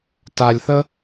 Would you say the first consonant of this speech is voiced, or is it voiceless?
voiceless